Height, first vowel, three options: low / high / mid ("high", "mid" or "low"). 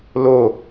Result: mid